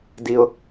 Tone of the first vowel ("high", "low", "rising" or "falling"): high